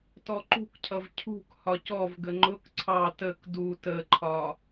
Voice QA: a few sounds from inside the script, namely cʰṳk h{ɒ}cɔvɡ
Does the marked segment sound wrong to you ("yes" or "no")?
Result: no